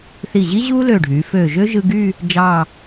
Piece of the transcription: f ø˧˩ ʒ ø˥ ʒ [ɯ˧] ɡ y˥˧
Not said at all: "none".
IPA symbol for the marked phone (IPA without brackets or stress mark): ɯ˧